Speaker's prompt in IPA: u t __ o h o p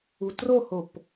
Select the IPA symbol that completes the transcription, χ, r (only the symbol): r